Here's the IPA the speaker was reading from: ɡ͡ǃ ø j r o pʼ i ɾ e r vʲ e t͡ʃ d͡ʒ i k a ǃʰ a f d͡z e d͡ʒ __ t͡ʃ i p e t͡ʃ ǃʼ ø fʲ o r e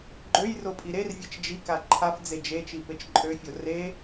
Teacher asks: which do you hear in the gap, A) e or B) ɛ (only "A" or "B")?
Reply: A